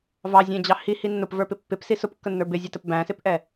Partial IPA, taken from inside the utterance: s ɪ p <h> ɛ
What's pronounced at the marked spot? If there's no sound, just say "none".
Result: ʔ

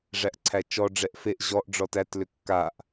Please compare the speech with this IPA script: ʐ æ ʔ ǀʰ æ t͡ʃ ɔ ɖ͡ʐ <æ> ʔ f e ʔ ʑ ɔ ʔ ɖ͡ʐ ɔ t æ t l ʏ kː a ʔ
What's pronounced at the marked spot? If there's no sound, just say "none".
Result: ɛ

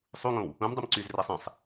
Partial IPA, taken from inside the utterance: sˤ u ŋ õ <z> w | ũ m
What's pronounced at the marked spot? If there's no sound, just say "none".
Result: none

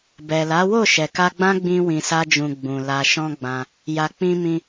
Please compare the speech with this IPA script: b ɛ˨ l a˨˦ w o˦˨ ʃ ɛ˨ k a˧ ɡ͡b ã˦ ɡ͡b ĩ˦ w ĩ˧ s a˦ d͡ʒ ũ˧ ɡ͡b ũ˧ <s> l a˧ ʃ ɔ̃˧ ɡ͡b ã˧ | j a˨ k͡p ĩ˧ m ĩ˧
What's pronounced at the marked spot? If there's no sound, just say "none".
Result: none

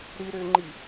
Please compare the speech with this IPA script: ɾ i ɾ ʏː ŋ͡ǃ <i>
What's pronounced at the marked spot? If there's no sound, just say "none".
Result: i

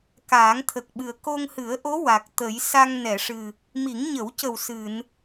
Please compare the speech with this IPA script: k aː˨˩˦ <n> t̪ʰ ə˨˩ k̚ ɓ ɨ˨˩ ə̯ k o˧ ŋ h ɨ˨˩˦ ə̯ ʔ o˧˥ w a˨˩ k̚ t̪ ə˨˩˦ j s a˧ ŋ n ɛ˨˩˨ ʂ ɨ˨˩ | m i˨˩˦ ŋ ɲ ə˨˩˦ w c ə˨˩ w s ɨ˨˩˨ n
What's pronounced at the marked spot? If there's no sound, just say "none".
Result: ŋ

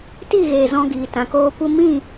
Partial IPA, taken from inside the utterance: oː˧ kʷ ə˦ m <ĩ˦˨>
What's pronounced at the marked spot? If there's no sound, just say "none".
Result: ĩ˦˨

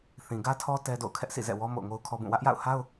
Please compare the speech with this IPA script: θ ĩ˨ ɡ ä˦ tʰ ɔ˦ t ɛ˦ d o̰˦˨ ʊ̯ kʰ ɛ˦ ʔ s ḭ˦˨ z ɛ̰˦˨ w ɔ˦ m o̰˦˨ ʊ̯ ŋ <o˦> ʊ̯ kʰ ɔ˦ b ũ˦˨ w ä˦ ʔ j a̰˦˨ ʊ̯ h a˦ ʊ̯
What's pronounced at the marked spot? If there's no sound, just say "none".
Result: o˦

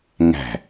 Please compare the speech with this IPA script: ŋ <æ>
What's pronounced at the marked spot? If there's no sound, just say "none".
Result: æ̤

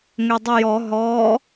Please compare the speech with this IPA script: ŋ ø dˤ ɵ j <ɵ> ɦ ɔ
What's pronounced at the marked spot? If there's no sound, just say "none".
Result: ɔ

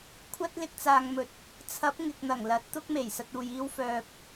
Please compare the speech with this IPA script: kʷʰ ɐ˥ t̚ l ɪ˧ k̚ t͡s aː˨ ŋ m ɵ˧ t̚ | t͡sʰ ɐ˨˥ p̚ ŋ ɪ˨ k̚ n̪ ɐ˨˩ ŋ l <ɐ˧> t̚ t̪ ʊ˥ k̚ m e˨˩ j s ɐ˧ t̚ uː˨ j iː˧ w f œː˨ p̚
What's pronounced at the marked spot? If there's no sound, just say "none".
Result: ɐ˨˥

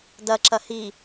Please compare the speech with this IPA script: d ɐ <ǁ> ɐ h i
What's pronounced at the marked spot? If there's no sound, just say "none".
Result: ǁ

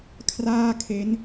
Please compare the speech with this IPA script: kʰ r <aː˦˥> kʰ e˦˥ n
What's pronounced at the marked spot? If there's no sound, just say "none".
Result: aː˥˩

